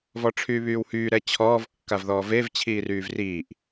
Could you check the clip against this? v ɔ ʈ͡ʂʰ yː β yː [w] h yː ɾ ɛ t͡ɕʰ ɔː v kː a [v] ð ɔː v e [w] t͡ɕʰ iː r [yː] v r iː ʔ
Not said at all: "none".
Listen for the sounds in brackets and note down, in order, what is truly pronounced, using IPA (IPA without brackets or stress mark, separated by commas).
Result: w, v, v, yː